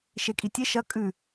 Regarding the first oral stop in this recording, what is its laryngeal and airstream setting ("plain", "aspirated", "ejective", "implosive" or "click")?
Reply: ejective